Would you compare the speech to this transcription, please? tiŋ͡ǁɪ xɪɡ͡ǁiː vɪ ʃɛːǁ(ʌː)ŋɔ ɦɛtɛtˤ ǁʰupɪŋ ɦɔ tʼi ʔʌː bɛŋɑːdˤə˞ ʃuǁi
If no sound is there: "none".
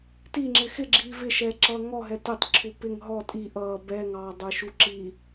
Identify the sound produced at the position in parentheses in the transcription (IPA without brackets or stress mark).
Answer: ʌː